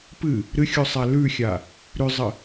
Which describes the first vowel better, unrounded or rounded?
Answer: unrounded